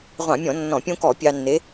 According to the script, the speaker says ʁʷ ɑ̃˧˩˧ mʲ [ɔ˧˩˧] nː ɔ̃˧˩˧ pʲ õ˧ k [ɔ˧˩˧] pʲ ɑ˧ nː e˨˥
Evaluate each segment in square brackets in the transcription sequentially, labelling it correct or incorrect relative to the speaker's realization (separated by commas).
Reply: incorrect, correct